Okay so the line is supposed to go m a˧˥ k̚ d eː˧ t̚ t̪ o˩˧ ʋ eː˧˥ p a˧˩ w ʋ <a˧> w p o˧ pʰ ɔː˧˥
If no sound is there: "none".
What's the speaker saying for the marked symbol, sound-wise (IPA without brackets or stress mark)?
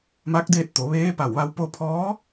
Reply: a˧